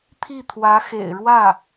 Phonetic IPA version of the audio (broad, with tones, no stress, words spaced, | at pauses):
t̪ʰi˥˩t̪ʰwä˧˥xḛ˨˩ɪ̯ ɻwä˥˩